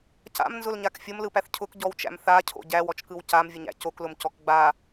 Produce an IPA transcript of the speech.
c a̰ m n z ʊ l ɲ a k fʲ o m l ɯ p æ θ cʰ ʊ k ɟ ɔ w t͡ʃ æ̰ m θ a cʰ o̰ ɟ æ w ɔ t͡ʃ k ɯ w c a m vʲ ʊ ɲ æ̰ c o k l ʊ m c ɔ k ɡ͡b a

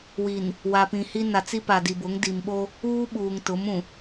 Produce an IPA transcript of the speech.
w i˨ n | w a˨ p ĩ˨ h i˦ n a˨ t͡s i˦ p a˨ d i˨ b ʊ˨˦ ŋ d i˨ m ɓ o˦ | uː˦ ɓ uː˨ ŋ t ʊ˨˦ m ũ˨

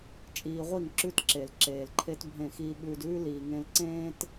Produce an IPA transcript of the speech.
t͡ʃʼ iː˧ ʁʷ i˦˨ ŋ ǁ ʉ˦ t ǁ e˨ l ǁ eː˨ l ǃʰ e˦ t bʱ ẽ˦˨ x iː˦ ɓ ʉː˧ d ʉː˦ l iː˨ ŋ ẽ˧ l ǀ ẽː˦ t

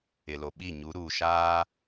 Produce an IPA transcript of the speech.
ɪ˨ l o˨ ɓ i˦˨ ɲ u˨˦ ɾ uː˨ ʃ aː˦

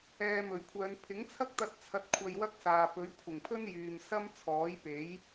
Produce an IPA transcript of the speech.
ɛː˧ m ɵ˨˩ ɥ kʷʰ œː˨˧ n pʰ ɪ˨˥ ŋ t͡sʰ ɐ˥ k̚ t̪ ɐ˧ t̚ t͡sʰ ɐ˧ t̚ kʷʰ ɐ˧ j w ɐ˥ k̚ s aː˨ p ɵ˨˥ ɥ kʷʰ ɪ˨˩ ŋ pʰ ɵ˥ n j yː˨ m s ɐ˥ m t͡sʰ ɔː˨˥ j p e˨˥ j

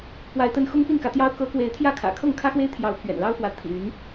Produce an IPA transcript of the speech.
p w a˨˦ ɪ̯ t̪ ə˨˦ n x ʊ˦ ŋ p i˥˨ n k ä˨˦ t̪ j ɑ˦ ʊ̯ k ɤ˨˦ k w e˨˦ ɪ̯ t̪ʰ j ä˥˨ kʰ ä̰˨˩ kʰ ɤ˥˨ ŋ kʰ ä˦ x w e˦ ɪ̯ t̪ʰ j ɑ˨˦ ʊ̯ pʰ ɥ ɛ̰˨˩ n l ɑ˦ ʊ̯ f w ä˨˦ t̪ʰ ḭ˨˩ y˨˦ n

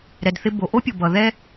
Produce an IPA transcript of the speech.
ɾ ɛ˩ d θ ɪ˧ b o˩ ʔ o˥ pʲ o˩ b ʌ˩ ð ɛ˥

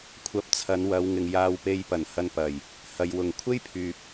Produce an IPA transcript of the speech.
kʷʰ ɐ˧ p̚ t͡sʰ ɐ˨˧ n w ɐ˨˧ w ŋ ɪ˨ ŋ j aː˧ w p e˧ j p ɐ˨˩ n h ɐ˧ n p ɐ˨˩ j | h ɐ˨ j w ʊ˨˩ ŋ kʷʰ e˥ j pʰ yː˨ p̚

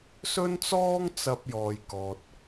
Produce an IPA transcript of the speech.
s ɵ˥ n t͡s ɔː˥ ŋ t͡s ɐ˧ p̚ j ɔː˨ j k ɔː˨ t̚

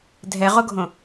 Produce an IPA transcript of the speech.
dʱ ɛ ʁ o ɡʱ õ

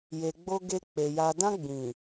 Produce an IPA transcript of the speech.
j e˨ ɡ͡b o˧ ɡ e˧ k͡p e˨ j a˨ d ã˧ ɡ͡b ĩ˨

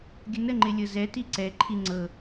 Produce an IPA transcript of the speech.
ɡʲ ə n ə ŋ͡ǃ ɪ lʲ ɤ z ɛ t i ǀ ɛ ǃʰ i ŋ͡ǀ ɤ

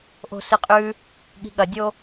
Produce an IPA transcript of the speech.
ʔ o̤ s ɨ qʼ ʉ | ɠ i̤ ɠ ɐ dʲ o

